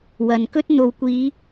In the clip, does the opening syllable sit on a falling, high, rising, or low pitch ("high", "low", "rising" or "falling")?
low